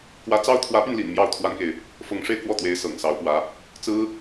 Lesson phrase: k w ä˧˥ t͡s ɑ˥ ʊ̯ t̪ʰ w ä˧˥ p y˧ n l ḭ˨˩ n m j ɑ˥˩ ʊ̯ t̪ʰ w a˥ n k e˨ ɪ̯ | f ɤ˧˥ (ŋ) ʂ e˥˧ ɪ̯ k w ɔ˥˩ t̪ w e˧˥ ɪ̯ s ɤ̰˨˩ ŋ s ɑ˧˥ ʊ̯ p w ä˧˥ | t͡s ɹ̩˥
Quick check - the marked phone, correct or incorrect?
correct